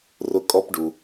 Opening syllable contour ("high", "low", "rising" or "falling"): high